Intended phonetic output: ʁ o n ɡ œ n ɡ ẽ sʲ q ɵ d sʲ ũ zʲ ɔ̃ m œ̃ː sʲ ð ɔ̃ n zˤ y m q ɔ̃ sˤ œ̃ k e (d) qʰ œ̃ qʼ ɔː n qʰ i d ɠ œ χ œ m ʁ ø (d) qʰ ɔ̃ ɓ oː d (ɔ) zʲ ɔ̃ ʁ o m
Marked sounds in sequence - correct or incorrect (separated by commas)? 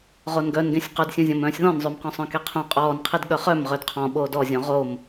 incorrect, correct, correct